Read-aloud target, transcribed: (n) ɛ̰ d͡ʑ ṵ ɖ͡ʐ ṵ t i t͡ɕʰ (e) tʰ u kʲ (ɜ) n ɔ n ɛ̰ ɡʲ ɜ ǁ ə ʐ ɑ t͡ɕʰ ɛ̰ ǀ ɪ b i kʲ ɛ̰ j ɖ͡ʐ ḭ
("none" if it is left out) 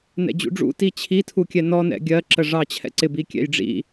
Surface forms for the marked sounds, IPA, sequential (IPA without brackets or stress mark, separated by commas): n, i, ɛ